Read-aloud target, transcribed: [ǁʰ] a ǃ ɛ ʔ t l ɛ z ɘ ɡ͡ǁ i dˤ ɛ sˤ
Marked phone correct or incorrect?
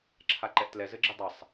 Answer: correct